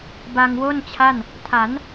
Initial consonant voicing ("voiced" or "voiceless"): voiced